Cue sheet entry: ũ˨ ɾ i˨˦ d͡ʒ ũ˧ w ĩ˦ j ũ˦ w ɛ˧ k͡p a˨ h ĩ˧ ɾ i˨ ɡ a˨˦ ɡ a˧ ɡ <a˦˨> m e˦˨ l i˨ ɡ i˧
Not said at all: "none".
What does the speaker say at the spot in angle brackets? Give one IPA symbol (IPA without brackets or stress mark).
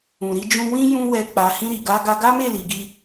a˦